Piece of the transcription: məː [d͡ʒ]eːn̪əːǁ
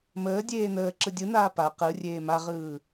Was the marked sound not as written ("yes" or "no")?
yes